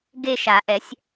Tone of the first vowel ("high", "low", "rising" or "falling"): falling